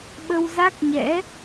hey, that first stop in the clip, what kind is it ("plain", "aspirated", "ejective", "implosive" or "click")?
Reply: implosive